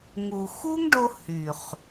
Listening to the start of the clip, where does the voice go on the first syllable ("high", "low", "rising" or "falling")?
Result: low